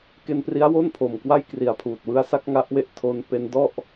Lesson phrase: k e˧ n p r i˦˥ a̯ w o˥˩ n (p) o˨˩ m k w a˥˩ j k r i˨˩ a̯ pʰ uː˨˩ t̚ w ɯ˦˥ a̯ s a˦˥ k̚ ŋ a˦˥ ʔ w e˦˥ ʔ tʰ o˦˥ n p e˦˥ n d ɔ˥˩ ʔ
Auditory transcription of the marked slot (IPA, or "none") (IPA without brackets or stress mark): pʰ